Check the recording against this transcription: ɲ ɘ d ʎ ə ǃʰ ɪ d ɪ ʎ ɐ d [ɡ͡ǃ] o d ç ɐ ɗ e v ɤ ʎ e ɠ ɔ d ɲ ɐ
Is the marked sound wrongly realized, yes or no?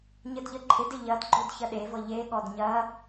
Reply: no